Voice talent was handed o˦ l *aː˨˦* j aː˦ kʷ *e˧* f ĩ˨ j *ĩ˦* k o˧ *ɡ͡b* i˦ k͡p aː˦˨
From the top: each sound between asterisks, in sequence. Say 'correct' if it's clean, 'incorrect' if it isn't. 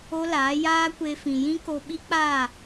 correct, correct, correct, incorrect

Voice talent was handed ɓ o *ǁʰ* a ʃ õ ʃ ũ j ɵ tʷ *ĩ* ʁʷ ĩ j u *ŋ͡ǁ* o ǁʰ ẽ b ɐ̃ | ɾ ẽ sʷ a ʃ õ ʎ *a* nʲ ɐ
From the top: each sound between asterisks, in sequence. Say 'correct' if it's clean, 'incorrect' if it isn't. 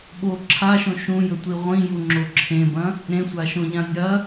correct, incorrect, correct, incorrect

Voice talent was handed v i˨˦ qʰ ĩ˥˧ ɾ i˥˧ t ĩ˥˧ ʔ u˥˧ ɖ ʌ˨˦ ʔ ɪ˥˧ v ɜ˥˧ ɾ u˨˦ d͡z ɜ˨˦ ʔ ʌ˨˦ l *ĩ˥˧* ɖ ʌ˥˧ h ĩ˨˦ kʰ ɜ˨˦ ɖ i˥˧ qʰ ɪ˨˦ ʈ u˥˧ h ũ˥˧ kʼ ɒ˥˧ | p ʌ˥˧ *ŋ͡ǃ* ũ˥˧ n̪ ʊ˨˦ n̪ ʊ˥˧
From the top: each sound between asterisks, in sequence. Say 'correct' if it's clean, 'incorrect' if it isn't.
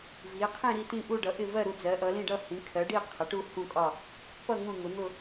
correct, incorrect

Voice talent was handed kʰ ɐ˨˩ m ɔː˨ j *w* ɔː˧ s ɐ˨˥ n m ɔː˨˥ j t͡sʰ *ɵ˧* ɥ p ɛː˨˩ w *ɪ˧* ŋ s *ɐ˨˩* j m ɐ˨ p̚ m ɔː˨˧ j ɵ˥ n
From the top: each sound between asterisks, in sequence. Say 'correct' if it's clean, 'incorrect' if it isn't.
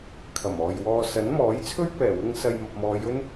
correct, incorrect, correct, incorrect

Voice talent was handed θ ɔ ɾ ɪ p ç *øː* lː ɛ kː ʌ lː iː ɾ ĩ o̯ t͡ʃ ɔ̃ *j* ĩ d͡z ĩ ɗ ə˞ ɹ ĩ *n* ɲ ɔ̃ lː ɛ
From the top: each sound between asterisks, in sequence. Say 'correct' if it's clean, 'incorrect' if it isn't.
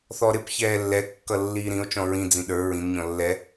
incorrect, incorrect, correct

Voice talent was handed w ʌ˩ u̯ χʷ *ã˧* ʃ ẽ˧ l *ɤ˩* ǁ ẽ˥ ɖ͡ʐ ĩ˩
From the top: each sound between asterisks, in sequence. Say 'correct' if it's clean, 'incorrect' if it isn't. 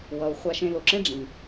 incorrect, incorrect

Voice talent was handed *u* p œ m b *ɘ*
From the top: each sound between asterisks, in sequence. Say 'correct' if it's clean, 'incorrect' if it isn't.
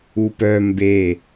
correct, incorrect

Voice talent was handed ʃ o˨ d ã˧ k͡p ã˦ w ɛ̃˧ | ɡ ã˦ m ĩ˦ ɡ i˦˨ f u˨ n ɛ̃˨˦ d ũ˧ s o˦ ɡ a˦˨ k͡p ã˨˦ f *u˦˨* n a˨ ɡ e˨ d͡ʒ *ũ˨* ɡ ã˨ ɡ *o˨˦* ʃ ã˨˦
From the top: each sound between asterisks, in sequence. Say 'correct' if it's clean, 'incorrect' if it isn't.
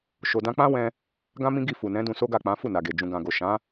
correct, correct, incorrect

